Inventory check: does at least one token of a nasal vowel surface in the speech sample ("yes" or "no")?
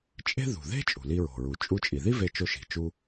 no